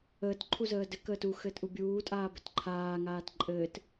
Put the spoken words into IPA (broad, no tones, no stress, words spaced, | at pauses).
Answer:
əːt ǃʰuzəːdɘ kəːtu xɘːtʔubʲuː tʼaːbɘtǃʰaː ŋaːtǃʼɘːt